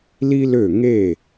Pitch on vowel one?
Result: high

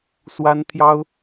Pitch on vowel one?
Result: high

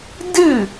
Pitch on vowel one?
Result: falling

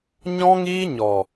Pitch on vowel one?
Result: high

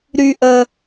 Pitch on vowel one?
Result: low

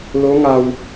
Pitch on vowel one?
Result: rising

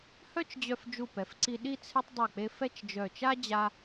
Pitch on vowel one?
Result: high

